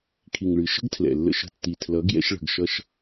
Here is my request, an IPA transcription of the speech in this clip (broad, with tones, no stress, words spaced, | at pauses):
kʰi˨ŋɭɨ˨ʃə̤˦ɡtʰlɛ̰˨ lːə̰˧ʃə̤˧ tːi˨tʰlʌ˨˦ ɡjɛ̰˧ʃɭə̤˨ɡʃʌ˧ʃ